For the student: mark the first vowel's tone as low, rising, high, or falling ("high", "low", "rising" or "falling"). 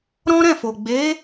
high